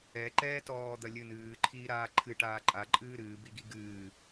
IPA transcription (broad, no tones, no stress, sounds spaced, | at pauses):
ɛ ǃ ɛː t ɔː d̪ ɐ lʲ ɨ n ɨː ǃʰ iː ɾ aː ǃʰ ɨ ʈ aː ǃʼ a ǃʼ ɨː ɾ ɨː b i ɡ i ɡ ɨː